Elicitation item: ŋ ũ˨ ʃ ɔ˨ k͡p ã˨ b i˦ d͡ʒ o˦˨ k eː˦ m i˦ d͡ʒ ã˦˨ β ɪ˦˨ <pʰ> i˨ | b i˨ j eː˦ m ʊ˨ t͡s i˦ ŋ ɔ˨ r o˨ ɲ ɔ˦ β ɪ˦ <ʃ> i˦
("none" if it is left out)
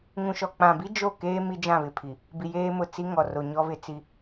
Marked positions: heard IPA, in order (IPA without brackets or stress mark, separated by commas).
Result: pʰ, t͡s